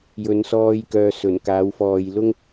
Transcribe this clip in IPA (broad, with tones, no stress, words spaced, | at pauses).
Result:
jɵ˨˧nsɔː˧jkœː˨ sɵ˨˩n kaː˨˥wfɔː˨j lʊ˥ŋ